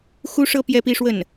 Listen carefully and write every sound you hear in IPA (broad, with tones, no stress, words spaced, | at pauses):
xu˥ ʂɤ˥ pjɛ˥pi˥ ʂwə˥˩n